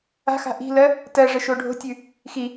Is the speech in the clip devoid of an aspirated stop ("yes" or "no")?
yes